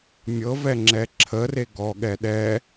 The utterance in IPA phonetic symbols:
mʲɤvɛ ŋ͡ǁɛǁʰəre ɡɔɠɛ ɗɛ

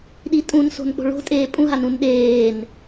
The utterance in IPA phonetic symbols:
ɗitʼũnso̤n k͡po̤ɭo̤ tʼeːpʼũɦan ũnɗeːn

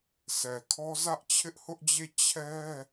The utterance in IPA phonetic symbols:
sɛ˨kʰɔ˦ zä˦ʔt͡ɕʰɪ˦ʔhʊ˦ʔd͡ʑe˦˨ t͡ɕʰɛ˦

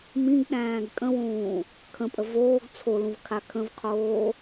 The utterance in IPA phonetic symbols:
mĩɡɗæ̃ːɡ kʼə̃wũː | kʰə̃pʼə voːɡ t͡sʰolũvkʰa kʰə̃vqʰoː

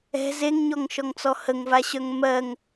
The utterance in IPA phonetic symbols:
ɛ̤ zeŋɲɔŋʃɔŋt͡sɔ həŋvaɕœŋ mɜŋ

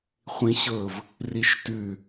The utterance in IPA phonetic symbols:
χʷĩɕɤv | riʃtʉ

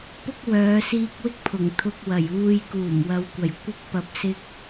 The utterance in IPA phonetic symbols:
pʊ˥k̚wœː˨˧ siː˧k̚wɪ˥k̚ pʰʊ˨˩ŋ t̪ʰʊ˧k̚ wɐ˨˩juː˧j kuː˨˩mwɐ˨wkʷɐ˨˩j kʷɪ˥k̚ pɐ˧p̚sɪ˥k̚

